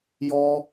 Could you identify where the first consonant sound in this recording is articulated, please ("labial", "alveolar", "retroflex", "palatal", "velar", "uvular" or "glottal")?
palatal